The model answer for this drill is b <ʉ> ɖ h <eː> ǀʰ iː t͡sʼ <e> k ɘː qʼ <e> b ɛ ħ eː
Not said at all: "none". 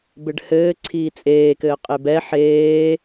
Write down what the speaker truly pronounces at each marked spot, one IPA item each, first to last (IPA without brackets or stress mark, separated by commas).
ɘ, ɘː, eː, e